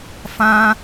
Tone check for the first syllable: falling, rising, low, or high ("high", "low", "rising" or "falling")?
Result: high